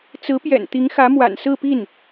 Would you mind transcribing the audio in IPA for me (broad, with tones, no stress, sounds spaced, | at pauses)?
t͡s ɹ̩˧˥ p j ɛ̰˨˩ n t̪ i˧˥ ŋ x ä˧˥ m w a̰˨˩ n s ɹ̩˥˧ p i˥˩ n